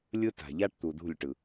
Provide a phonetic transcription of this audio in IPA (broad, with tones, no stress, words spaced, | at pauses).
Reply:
lʲɯ˦ta̤˨ ʎa˦ʈt̪u˨dṳ˦˨lʲʈɯ˨